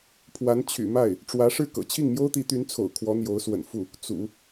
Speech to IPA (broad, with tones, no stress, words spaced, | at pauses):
pʰwa˧˥nt͡ɕʰy̰˨˩ma˥˩ɪ̯ | ʈ͡ʂwä˧˥ ʂɻ̩˥˩kɤ̰˨˩ t͡ɕʰi˥˩ŋmjo˥ʊ̯t̪i˧˥t̪y˧˥n t͡sʰo̰˨˩ʊ̯kʰwɔ˧˥ n̪jo˧˥ʊ̯swə̰˨˩nfu˥˩ | t͡sṵ˨˩˦